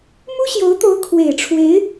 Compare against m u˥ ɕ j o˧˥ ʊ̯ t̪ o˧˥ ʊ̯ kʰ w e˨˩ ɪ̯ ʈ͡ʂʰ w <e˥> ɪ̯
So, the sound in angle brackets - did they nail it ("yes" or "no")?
no